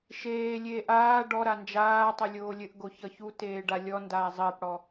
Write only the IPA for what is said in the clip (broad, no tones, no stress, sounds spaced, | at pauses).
ʃ eː lʲ eː ʔ aː ɖ ɔ ɾ a n d͡ʒ aː tˤ ʌ lʲ oː lʲ ɘ ʔ ɡ o ç ʌ ç u t eː ɖ a lʲ ɔ n d aː zˤ ɘː p ɽ ɔ